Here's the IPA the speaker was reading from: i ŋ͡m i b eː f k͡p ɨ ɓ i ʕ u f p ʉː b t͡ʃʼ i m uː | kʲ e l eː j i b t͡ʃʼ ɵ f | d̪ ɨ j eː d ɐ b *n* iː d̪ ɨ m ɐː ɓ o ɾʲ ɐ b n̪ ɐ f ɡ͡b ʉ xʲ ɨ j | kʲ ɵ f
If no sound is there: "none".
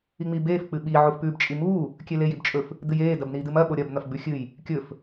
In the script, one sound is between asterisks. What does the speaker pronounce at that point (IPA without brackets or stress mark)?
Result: n